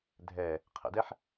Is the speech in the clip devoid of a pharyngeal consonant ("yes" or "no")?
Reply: no